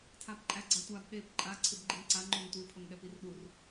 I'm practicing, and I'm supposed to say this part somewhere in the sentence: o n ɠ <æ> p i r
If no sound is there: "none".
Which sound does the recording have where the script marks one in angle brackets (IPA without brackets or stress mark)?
ɛ